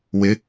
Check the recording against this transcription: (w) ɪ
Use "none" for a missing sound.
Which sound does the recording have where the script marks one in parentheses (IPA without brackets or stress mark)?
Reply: w